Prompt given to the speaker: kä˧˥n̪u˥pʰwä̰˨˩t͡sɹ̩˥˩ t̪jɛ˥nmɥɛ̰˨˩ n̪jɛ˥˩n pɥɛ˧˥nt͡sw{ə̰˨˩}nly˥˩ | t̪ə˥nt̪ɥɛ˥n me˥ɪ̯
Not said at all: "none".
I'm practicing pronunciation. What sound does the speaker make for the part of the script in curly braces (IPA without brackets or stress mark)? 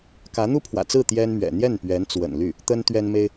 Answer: ə̰˨˩